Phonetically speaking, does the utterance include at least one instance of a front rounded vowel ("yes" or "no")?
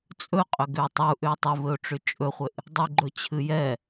yes